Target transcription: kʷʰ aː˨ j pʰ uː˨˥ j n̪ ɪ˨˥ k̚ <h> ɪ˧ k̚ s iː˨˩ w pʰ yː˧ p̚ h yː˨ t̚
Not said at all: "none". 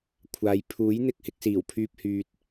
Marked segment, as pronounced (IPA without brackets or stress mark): h